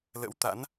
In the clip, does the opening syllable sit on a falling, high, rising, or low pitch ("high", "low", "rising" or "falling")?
rising